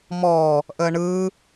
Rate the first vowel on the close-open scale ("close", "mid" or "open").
mid